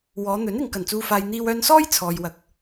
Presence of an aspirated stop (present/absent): present